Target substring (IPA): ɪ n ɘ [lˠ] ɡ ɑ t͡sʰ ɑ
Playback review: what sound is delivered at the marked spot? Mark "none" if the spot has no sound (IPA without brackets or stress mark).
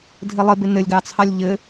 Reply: lʲ